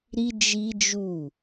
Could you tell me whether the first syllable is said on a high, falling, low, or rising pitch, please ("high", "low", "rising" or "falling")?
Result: high